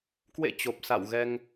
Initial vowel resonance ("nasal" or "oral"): oral